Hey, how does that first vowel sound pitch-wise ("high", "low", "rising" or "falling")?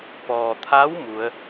low